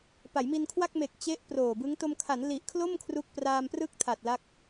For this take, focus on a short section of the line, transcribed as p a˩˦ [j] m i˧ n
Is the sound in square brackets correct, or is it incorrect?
correct